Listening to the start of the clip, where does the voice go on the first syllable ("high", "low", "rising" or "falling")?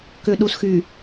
low